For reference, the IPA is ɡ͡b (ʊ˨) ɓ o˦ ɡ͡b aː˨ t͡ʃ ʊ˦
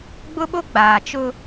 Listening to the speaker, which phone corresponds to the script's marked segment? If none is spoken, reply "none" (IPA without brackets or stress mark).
ʊ˦